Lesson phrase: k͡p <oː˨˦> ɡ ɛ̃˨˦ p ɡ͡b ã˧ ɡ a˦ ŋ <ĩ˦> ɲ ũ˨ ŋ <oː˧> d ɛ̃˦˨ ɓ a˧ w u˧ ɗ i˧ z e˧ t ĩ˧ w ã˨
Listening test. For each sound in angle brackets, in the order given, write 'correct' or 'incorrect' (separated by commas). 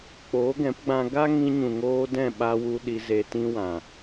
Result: correct, incorrect, correct